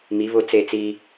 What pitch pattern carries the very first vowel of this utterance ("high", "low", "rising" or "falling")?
rising